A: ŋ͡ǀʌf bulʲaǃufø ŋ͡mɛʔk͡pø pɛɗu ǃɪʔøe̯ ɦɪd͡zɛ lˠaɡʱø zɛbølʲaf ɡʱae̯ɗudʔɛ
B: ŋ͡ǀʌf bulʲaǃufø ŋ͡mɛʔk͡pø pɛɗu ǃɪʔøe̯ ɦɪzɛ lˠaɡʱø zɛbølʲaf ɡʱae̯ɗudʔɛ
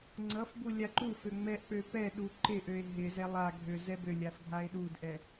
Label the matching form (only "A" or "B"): B